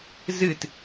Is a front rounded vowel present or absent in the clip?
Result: absent